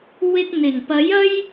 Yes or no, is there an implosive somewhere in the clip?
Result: no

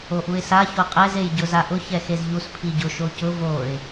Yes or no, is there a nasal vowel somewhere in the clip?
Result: no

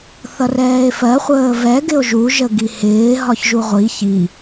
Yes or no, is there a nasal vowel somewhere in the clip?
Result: no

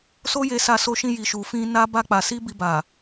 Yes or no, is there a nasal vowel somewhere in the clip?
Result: yes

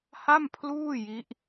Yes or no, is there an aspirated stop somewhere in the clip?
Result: yes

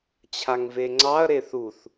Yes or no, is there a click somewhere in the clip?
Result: yes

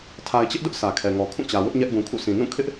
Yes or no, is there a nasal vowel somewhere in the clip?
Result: yes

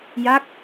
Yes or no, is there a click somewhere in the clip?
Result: no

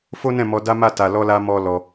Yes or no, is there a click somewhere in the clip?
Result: no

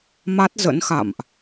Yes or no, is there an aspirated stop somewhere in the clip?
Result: no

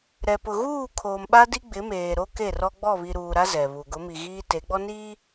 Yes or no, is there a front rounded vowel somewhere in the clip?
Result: no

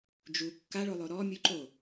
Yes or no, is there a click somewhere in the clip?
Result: yes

